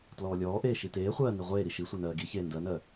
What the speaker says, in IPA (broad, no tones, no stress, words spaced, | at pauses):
tlɔːlʲɔːʔeː ʃiteːχʷɜː niʁʷeːɾi ʃisʷe nɜːɡiçeː ndɜnɜ